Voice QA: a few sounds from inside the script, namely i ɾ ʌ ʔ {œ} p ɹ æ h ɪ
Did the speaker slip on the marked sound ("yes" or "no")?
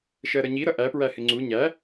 yes